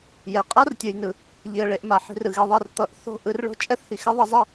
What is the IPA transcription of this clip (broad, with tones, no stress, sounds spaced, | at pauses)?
j ɛ˨ qʼ a˦ r tʲ ɯ˨ j n ɯ˨ | ʎ i˨ ə̯ ɭ e˧ ʔ m a˨ ħ i̤˧ r ɯ˨ ɣ e˧ ðˤ ɛ˦˨ r t̪ ʌ˦ ʔ θ o̤˦ ʔ ɯ˧ r ɭ o̤˦ t͡ʃʼ ɛ˦ θ h i˨ x ɛ˦ ðˤ ʌ˧ zˤ ɛ˦˨